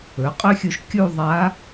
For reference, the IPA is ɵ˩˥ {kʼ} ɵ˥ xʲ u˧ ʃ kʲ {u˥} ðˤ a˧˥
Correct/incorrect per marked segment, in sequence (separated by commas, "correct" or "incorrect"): incorrect, incorrect